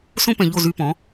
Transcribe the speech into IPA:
sõ˦pɛ̃˨ʎo˦˨ zy˧pɔ̃˨˦

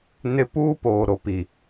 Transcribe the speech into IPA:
nɪ˦ puː˦poː˨ ɾo˨pi˨

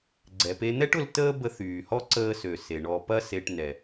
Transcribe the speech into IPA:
ɡ͡ǀɛ˩pe˧ n̪ɛ˥ʈʊ˧l təː˥bə˧θyː˩hɔ˥ ǀəː˧sø˩ se˩ɳɔ˧ pɐ˥se˧ʈ nɛ˩

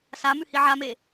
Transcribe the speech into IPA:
sa mʉhiʕame

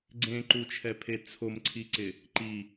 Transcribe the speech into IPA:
ɡ͡ǀẽǃut͡ʃʰɛpʰe t͡sʰomǀʰiǀɪ | ǃi

